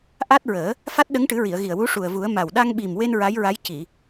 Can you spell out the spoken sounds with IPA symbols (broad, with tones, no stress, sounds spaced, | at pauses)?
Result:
ʔ a˦˥ t̚ ɹ əː˨˩˦ | f a˦˥ t̚ ɗ ə˧˥ ŋ ʈ ɨ˨˩˦ ɹ i˨˩˨ ə̯ ɣ i˨˩ ə̯ w u˧˥ ʂ u˨˩ ə̯ v u˨˩˦ ə̯ m a˨˩ w ɗ a˧ ŋ ɓ i˨˩ m w e˧ n ɹ a˧˥ j ɹ a˧˥ j c i˨˩˨